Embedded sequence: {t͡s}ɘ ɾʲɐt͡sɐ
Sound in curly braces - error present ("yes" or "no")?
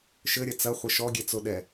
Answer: yes